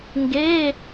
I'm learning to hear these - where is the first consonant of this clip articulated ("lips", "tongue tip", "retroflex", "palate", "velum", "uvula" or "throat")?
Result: velum